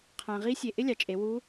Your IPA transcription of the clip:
qʰ ã˩ ʁ i˧˥ sʲ e˩ ʔ ɪ˥ lʲ ɑ˩ t͡ʃʼ e˩˧ w u˧˥

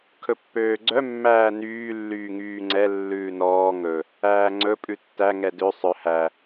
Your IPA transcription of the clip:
kʰ ɵ pː øː ɡ͡ǀ œ mː æː n yː lː yː ŋ yː ŋ͡ǀ ɛ lː ʉː n ɔː ŋ ɵ | æː ŋ͡ǀ ɵ pʼ ʉ tː æ ŋ ɛ d ø sˤ œ h æ

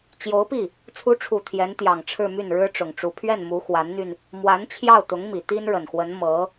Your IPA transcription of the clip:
t͡ɕ j o˧˥ ʊ̯ p i˥˩ | t͡sʰ u˧˥ ʈ͡ʂʰ u˨˩ t̪ʰ j ɛ˧˥ n t̪ j ɑ˨˩ ŋ ʈ͡ʂʰ ɻ̩˥˧ m y˥˩ n ɻ ɻ̩˥ ʈ͡ʂ ʊ˨˩ ŋ ʈ͡ʂ u˧˥ pʰ ɥ ɛ˥˩ n m u˧˥ x w a˧˥ n n̪ y˧ n | m w a˧˥ n t͡ɕʰ j ɑ˥˩ ʊ̯ t̪ ʊ˧˥ ŋ m i˨˩ t̪ i˥ n ɻ ə˨˩ n x w ə˧˥ n m ɤ˧˥

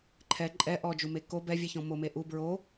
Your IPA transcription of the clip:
ǃʰ ɛ ǃʼ ɛ ʔ ɔ d͡ʒ u m e k o b ɛ vʲ ɛ ç ɔ̃ m o m e ʔ u b ɹ o

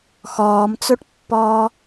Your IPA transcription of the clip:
x ɔː m t͡s o ʈ pː ɔː

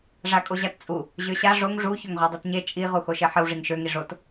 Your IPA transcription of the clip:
ʐ a kʼ o ʑ a t t͡sʼ u | ʑ ø ɕ a ʐ o ŋ ʐ u ç ø ŋ ʁʷ a dˤ i t ɲ e t͡ʃʼ i ʁ u x o ʃ e ħ ə w ʐ i ŋ ʃ ø ŋ i ʐ o t

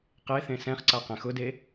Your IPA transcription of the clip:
q e θ ẽ s ɛ̃ χ ǀ a q ɛ̃ x ʊ d e

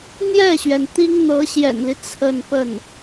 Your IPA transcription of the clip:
n̪ j ɛ˥˩ ɕ ɥ ɛ˩ n t̪ i˥ ŋ n̪ ɤ˧˥ ɕ j ɛ̰˨˩ n l i˦ t͡sʰ ə˥˧ n p ə˥˩ n

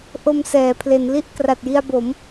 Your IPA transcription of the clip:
ʔ o˧ m s ɛː˩˦ pʰ l e˩˦ n l i˦˥ ʔ k r a˨˩ t̚ j i˧ a̯ b o˩˦ m

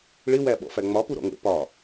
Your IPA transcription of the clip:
ɭ ɪ w æ ɓ ɔ̰ f æ ŋ͡m ɒ p u ɾ ɔ̰ ŋ ə̰ p ɒ

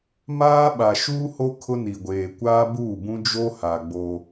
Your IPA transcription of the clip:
m aː˦ ɓ a˨ ʃ uː˦ h o˦ kʰ ʊ˦ n i˨ ɡʷ eː˨ kʷ aː˦ b uː˦˨ b ũ˦ d͡ʒ o˦ h a˨ ɡ͡b o˦

